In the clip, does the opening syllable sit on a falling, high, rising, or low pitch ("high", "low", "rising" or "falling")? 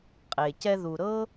low